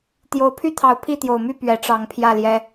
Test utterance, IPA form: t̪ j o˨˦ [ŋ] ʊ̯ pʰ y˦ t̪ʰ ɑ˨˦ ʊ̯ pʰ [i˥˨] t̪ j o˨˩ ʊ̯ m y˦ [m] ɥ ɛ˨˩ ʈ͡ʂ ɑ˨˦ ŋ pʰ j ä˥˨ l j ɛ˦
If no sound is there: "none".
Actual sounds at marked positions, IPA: none, i˥˨, p

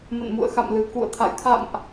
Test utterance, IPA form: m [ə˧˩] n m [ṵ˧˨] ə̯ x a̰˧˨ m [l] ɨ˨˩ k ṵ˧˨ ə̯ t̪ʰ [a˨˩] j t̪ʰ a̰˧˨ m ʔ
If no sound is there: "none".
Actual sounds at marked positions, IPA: ə̰˧˨, ṵ˧˨, l, a̰˧˨

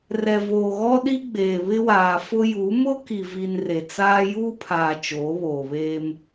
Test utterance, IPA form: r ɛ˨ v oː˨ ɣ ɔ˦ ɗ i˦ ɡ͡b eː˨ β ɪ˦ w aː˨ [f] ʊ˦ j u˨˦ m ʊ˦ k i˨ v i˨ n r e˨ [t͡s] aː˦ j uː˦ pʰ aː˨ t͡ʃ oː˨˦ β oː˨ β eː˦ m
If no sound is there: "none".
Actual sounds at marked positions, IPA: f, t͡s

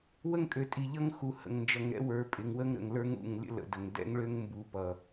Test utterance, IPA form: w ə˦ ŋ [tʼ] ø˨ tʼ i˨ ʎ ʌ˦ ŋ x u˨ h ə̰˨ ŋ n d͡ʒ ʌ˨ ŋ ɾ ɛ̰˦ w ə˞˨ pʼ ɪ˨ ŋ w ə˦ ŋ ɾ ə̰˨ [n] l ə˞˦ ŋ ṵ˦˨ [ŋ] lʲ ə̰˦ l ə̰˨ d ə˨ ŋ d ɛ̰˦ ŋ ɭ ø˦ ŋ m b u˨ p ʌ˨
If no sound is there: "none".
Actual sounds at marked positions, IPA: kʼ, ŋ, ŋ

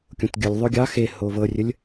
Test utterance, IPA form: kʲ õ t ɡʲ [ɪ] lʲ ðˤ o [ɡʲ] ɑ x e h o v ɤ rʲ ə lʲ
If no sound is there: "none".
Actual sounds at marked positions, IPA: ə, ɡʲ

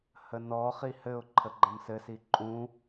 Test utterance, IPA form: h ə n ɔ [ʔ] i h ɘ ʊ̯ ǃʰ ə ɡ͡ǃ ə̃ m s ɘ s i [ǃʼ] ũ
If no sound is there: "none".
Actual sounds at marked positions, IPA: χ, ǃʼ

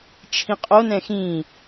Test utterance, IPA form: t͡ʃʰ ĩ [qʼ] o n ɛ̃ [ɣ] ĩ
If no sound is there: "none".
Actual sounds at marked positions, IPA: qʼ, x

